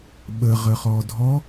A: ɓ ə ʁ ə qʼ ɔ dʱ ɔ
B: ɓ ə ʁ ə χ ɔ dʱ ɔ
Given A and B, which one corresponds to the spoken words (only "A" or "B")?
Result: B